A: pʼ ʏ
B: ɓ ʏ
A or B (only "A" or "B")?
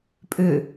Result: A